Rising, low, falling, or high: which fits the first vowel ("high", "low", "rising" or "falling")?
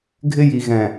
high